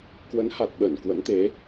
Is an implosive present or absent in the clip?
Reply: present